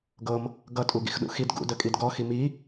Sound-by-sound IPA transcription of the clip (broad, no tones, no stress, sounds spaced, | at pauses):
ɡ ɤ m | ɡ ʌ tʼ u ɡ ḭ x ɗ ṵ x i d ɡ ṵ d ə kʼ i d ɡ ɔ x i m i